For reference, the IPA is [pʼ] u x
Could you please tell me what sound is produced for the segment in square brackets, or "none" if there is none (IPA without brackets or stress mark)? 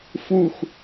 f